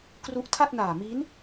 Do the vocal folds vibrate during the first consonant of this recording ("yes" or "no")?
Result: no